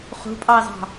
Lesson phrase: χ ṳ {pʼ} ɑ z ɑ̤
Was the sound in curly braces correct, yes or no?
yes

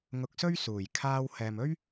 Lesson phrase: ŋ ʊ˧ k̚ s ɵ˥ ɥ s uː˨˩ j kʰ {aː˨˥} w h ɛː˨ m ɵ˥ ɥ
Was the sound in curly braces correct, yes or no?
no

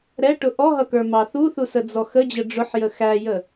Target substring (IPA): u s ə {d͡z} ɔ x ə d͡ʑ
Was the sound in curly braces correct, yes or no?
yes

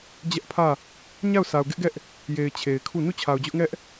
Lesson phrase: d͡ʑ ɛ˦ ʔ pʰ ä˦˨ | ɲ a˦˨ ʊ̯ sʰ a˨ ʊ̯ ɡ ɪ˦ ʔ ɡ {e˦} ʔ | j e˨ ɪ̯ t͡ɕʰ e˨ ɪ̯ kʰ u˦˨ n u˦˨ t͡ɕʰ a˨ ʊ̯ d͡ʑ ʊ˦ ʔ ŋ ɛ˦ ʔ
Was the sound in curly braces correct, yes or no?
no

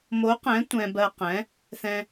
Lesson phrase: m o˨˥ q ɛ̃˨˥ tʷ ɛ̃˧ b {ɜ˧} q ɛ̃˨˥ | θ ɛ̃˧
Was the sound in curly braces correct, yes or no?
yes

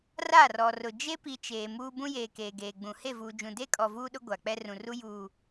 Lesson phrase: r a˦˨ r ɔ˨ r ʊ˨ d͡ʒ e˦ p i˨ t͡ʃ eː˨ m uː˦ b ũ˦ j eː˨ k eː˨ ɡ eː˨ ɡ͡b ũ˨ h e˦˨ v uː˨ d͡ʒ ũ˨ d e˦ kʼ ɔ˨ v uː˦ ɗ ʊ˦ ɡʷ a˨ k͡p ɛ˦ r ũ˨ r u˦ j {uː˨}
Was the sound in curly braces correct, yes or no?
yes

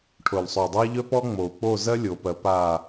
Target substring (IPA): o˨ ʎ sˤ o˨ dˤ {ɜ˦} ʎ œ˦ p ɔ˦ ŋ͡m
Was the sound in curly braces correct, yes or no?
yes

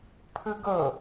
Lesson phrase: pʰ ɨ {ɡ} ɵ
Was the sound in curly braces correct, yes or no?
yes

